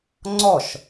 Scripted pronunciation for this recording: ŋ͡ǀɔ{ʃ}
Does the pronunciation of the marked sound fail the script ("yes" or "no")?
no